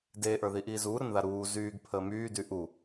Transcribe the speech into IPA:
deːʔə˞ðiʔiː zuːɾənða ɾuː zyːɡpʰəː myːdy ʔu

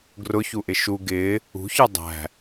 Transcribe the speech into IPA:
ɡrʊçuʔɪ ʃu ɡɪː | ṳçə˞ dˤæ̤

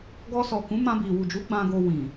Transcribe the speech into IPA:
ɡɔ˧sɔ˨ kũ˨˦mã˧ bi˨ wu˨d͡ʒu˨˦ ɡ͡bã˧ɡo˧ wĩ˨

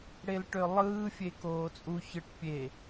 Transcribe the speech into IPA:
ɽelʈølˠɯː fʲekoːt͡sʼu çɯʈpʲe

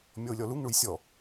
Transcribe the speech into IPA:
mʲɔʊ̯lʲɔluŋ ɳujsʲɔ

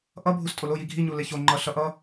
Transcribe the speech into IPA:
ʔʌbʱustʼol oji ɡʱiɲule ço ŋ͡ǃʌɬʌʔʌ

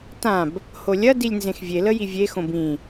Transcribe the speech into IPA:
tãb | holʲɐ dilʲnzẽxvʲe ləjivʲe xõbĩ

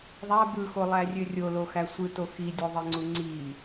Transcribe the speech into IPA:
ðˤæ bɯxolˠærʲø rʲoloxæ sʷɯto xidʲoðˤiŋ͡ǀu ŋ͡ǀi

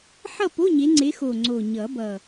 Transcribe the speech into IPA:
ħʌ˥˨po˧˥˧ ɲe˨˦ŋ͡ǀe˨˦xo˨˩ ŋ͡ǀo˨˩ ɲʌ˨˩˦bʌ˨˩

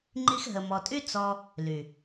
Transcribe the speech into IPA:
ŋ͡ǃi˧xɦə˨mɔ˨tʼy˦ t͡sɔ˧ | ly˨

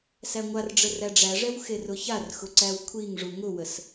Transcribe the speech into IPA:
sæŋʷarɖ͡ʐə ræɖ͡ʐæʐɛw xerʊçarxʊ ǀæwkʷʰiŋʐu ŋʊwəs

